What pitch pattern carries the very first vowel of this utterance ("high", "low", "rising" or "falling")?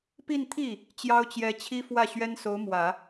falling